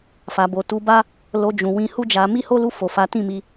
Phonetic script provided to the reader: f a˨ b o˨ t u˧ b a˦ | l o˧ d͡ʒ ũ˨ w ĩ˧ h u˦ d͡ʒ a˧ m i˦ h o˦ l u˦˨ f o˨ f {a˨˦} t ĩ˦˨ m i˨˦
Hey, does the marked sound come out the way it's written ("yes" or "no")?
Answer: yes